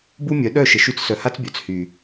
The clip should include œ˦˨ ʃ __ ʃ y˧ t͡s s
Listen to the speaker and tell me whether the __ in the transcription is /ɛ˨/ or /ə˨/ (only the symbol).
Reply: ə˨